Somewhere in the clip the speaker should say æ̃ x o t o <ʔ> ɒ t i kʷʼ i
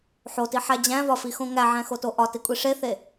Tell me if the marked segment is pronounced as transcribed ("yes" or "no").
yes